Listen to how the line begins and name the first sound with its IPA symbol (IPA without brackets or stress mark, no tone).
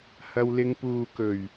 h